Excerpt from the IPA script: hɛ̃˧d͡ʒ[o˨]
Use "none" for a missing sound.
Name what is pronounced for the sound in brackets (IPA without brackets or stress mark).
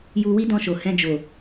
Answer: o˨